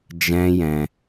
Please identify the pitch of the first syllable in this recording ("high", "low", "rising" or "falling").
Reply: high